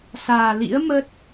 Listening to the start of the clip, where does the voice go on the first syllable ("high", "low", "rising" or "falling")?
low